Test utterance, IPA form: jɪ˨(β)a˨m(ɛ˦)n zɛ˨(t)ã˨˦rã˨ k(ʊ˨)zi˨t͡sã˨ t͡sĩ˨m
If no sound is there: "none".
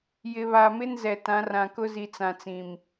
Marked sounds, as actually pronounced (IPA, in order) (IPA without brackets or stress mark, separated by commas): β, ɪ˦, t, ʊ˦